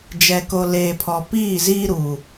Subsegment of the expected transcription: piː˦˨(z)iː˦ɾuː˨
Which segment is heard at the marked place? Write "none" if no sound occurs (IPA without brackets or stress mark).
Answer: z